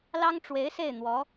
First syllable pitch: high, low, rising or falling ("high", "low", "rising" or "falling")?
high